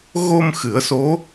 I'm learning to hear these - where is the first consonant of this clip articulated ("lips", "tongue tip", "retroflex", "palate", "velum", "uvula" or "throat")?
velum